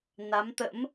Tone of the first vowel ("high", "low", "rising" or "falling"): rising